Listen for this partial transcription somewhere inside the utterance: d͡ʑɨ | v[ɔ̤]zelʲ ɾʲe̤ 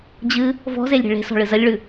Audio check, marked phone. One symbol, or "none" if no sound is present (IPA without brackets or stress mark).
ɔ̤